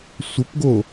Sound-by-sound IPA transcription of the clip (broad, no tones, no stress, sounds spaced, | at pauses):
sʷ ə p ɡ o